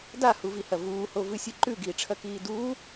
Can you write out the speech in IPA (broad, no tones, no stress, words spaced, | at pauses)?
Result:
dahuvihɐ vuːhovɨsʲɨ ǃʉɡiːʈ͡ʂʰɐkiː duː